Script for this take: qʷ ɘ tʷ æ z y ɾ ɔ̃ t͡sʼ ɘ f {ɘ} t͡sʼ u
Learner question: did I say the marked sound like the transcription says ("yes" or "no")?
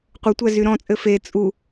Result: no